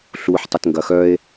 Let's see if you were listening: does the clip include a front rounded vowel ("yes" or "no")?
yes